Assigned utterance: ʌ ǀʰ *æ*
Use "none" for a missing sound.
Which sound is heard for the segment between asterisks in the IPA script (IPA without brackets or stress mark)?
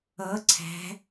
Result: æ̤